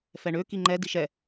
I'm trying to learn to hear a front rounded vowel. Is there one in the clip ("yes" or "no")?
yes